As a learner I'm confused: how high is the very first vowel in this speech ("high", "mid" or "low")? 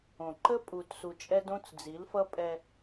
mid